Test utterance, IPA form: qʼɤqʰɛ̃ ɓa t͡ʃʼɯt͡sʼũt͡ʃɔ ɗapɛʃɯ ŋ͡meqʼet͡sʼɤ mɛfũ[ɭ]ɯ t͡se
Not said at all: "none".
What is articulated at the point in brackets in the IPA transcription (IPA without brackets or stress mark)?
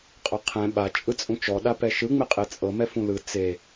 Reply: l